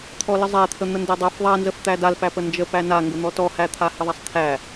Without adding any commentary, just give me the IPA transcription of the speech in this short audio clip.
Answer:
t̪ʰ ɔ l ə zˤ æ t̪ʰ ə n̪ ə n d æ dˤ a f ðˤ a n z ə f t̪ æ d a l p æ p ə n d͡ʒ ə p æ n a ŋ ɡ ə n̪ ɔ t ɔ h æ t̪ʰ a h ə ðˤ a sˤ t̪ʰ æ

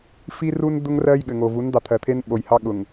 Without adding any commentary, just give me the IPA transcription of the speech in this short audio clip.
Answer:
f i˦ r u˦ n d̪ ʊ˦ ŋ r ɜ˦ j ɠ ɘ˨ ŋ o˨ v u˨˦ n d̪ ɑ˨ t̪ʰ ɜ˨ t̪ʰ e˦ n ɓ o˨ j h ɑ˦ ɠ ʊ˨ ŋ

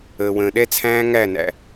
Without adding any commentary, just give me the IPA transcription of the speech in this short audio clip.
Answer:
əː˨ w ə̃ː˨ ɗ ɛ˦ t͡sʰ æ̃ː˦ ŋ æ˦˨ n æ̰˨

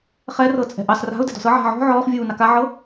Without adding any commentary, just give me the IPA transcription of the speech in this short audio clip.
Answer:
χ ɛ r ɤ t͡sʼ ɛ̤ ʔ ɑ s r a̤ ʊ̯ d ɛ̤ d ɔ̤ s ɤ ʕ a̤ ʕ ɔ̤ ʕ ɔː χ vʲ uː n ɑ k a ʕ ɤ

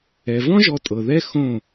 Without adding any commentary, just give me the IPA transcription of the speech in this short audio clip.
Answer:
ɛ˨ v ɔ̃˦ ʒ ɔ˧ tʼ ɤ˨ ð ɛ˦ x õ˦˨

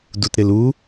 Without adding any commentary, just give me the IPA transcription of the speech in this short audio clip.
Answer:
d u t ɾ ɪ l u

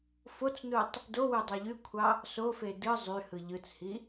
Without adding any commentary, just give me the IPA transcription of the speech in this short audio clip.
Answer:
f o t͡s n u tˤ | d o w y dˤ ɑ ʎ y kʷʰ ɑ | s o f e d ɯ zˤ y h ɯ ʎ ɯ t͡s h i

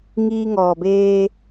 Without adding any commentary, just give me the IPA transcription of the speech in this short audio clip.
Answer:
ŋ iː˧ ŋ ɔː˩ b eː˧

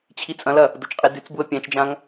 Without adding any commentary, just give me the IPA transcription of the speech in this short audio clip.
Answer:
t͡ɕʰ i t͡sʼ ɐ̃ l ɐ | d o t͡ʃ qʼ i d ʉ t͡s b u ə̯ pʲ ã t͡ʃ d͡ʒ ã ŋ

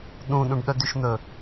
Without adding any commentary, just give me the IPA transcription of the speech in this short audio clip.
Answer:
ɗ ũ ɗ ũ ɖ ɗ œ d y ʃ n̪ ɵ

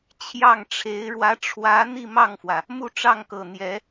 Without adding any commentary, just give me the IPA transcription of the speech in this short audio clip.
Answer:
t͡ɕʰ j ɑ˥˩ ŋ ʈ͡ʂʰ e˧˥ ɪ̯ ɻ w ä˧˥ ʈ͡ʂʰ w ä˧˥ n̪ i˥˧ m ɑ˥˩ ŋ f w ä˩ | m u˥˧ ʈ͡ʂ ɑ˥˩ ŋ k ɤ˨˩ n̪ j ɛ˧˥

